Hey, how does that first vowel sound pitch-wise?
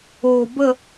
low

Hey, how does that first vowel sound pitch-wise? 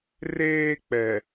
high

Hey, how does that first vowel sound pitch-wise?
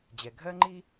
low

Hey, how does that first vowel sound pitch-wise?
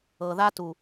low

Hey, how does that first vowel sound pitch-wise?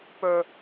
low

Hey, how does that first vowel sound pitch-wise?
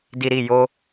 low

